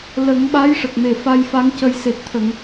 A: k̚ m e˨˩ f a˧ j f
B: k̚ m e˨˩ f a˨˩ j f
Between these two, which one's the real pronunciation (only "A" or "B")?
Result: A